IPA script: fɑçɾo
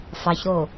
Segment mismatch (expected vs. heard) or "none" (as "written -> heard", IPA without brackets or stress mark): none